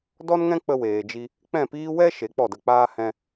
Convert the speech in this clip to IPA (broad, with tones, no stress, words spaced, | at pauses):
dɔ˦nŋɛ̃˦ k͡pə˧weː˨d͡ʒi˧ | k͡pɛ̃˦˨piː˦ wɛ˦ ʃe˨˦k͡pɔ˦˨də˧k͡paː˦ hɛ̃˧